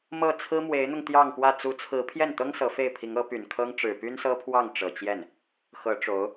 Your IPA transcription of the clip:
m ɤ˥˩ t͡sʰ ɹ̩˥ m w e˧˥ ɪ̯ n̪ ʊ˧ ŋ t̪ j ɑ˥˧ ŋ p w ä˥˩ t͡s u˧˥ t͡sʰ ɹ̩˧˥ pʰ j ɛ˥˩ n t̪ ɤ˥ ŋ s ɤ˧˥ f e˥˩ ɪ̯ pʰ i˧˥ ŋ ɤ˧˥ p y˨˩ n kʰ ɤ˥ ŋ ʈ͡ʂ ɻ̩˨˩ p y˥ n s ɤ˥ pʰ w ɑ˥˩ ŋ ʈ͡ʂ ɤ˨˩ t͡ɕ j ɛ˥˩ n | x ɤ˧˥ ʈ͡ʂ o˧˥ ʊ̯

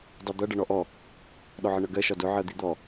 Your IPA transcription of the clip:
dˤ i d̪ ʌ ɖ ʌ ɳ ɔ ʔ ɔ | ɗ ɔ ʕ ə ɳ ʌ ɡ ɜ ʃ ɒ d ʊ ʕ ɜ d̪ i d̪ ɔ

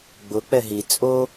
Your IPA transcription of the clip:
ɡ͡b ʊ k͡p ɛ ɦ i t͡sʼ o

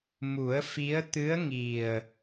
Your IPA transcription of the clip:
m u˨˩˦ ə̯ f i˧˥ ə̯ t̪ ɨ˧˥ ə̯ ŋ i˨˩ ə̯

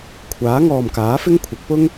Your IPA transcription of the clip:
kʷʰ aː˨˥ ŋ ɔː˨ m k aː˨˥ f ɪ˥ ŋ kʷʰ ɐ˨˥ k̚ p ʊ˥ ŋ

